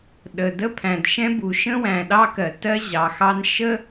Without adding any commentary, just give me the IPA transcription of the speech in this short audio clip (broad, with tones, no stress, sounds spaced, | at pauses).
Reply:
ɗ ə˩ d ə˥ pʰ æ̃˩ d ʃ ɛ̃˥ b u˩ ʃ ə̃˥ w æ̃˩ ɗ ɑ˥ k ɜ˩ t ɜ˥ ʑ ɑ˩ x ɑ˥ n ʃ ə˥